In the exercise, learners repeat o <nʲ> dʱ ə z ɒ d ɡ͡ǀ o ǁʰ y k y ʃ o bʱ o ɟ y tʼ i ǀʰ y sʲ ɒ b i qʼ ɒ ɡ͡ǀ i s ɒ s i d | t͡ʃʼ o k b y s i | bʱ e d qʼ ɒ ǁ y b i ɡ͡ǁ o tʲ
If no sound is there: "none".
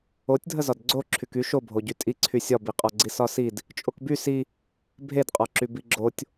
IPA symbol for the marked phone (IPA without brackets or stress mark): tʲ